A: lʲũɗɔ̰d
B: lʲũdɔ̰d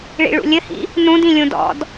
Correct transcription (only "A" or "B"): B